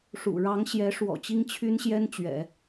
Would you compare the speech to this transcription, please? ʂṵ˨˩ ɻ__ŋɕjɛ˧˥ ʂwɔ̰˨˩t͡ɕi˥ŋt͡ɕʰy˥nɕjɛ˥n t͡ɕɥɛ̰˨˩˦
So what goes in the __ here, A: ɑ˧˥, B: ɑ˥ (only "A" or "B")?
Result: A